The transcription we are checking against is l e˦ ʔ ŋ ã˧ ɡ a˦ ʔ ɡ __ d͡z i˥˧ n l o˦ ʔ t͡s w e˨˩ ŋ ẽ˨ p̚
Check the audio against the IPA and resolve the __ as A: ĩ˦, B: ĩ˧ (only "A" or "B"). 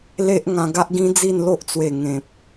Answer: A